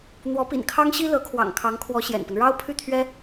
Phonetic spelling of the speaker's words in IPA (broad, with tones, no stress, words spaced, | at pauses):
n̪wɔ˧˥pḭ˨˩n kʰɑ˥ŋɕi˥ lɤ˧˥kʰwɑ̰˨˩ŋkʰɑ˧˥ŋkʰwɔ˧˥ ɕjɛ̰˨˩npə˦n ɻɑ˥ʊ̯pʰy˥˩t̪ʰɥɛ˥